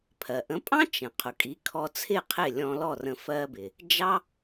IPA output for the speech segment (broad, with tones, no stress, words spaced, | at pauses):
pʰɜ˩ʔə̃˩˥pʼɑ̃˥ t͡ʃə̃˩ qʰʊ˩kʼi˩˥kʰɔ˧t͡sʰɪ˥˩ qʰɪ˥˩lʲɔ̃˧lɔ˥˩rə̃˧ fɜ˧bɪ˩ | d͡ʒɑ˥